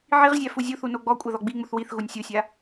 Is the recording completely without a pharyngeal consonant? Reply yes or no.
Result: no